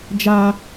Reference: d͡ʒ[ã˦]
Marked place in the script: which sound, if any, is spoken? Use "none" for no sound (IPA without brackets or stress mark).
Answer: a˦